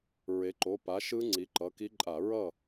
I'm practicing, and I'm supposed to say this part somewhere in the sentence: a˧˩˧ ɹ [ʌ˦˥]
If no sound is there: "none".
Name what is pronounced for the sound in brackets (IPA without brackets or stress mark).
ʌ˥˩